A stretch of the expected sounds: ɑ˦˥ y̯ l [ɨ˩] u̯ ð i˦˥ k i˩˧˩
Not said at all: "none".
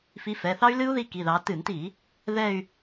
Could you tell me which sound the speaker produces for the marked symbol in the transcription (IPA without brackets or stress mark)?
ɨ˦˥